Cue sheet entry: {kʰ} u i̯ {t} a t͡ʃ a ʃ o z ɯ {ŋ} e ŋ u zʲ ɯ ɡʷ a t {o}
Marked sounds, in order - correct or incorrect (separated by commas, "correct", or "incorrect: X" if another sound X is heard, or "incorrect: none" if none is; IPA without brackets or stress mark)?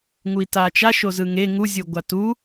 incorrect: ŋ, correct, correct, incorrect: u